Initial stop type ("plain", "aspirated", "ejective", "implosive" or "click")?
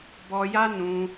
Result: plain